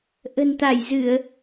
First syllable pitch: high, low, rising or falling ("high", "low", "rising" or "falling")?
low